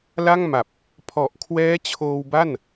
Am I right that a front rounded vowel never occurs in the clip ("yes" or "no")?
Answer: yes